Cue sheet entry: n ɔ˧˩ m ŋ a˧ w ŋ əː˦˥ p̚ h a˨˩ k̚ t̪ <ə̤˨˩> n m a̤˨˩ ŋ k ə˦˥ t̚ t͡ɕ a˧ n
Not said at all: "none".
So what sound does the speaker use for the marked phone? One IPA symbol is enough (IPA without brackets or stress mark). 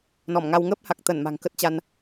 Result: ə˧˩